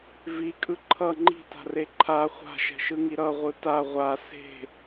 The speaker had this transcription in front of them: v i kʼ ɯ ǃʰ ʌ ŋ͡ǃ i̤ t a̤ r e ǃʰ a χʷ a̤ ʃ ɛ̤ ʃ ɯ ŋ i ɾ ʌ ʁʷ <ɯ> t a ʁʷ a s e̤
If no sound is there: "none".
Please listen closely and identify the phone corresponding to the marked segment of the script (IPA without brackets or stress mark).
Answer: ɯ